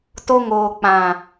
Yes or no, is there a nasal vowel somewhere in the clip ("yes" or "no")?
yes